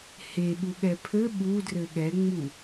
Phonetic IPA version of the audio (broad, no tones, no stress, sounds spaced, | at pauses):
h e ɓ u ɠ ɛ pʰ ɘ ɓ u d r ɘ ɠ ɛ ŋ͡m u